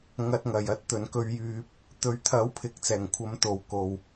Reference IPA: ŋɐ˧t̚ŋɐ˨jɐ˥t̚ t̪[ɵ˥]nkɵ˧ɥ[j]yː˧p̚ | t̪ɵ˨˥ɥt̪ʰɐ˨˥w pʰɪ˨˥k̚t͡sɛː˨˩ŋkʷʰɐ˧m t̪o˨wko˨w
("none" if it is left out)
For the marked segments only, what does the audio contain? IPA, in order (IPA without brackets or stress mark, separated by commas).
ɵ˨, j